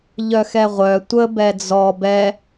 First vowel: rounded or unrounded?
rounded